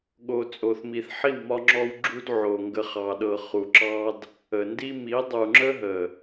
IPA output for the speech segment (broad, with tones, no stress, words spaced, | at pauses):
ɠo˨ t͡sʼo˨θmi˨θħi˦˨w mɒ˦ŋ͡ǁɔ˦w ɡ͡ǁu˦dʕo˨ ŋɡə˨χɑ˨ɗɤ˨ χu˨ǁɑ˦d | ə˨ ndi˦ mi˨˦dˤu˨ ŋ͡ǁə˦ɦə˨